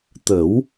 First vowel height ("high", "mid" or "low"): mid